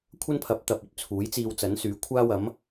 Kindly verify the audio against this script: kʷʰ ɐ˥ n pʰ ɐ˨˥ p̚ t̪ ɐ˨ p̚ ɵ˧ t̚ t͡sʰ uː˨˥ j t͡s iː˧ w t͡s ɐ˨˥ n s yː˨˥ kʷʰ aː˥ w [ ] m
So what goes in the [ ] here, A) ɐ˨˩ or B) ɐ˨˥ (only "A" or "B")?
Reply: B